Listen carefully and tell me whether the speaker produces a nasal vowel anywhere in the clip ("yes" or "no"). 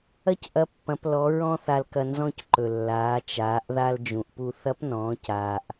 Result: yes